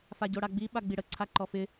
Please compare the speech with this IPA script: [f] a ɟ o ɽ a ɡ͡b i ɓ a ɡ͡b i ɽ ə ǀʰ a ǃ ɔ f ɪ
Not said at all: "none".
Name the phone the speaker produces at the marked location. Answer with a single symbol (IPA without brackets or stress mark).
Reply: f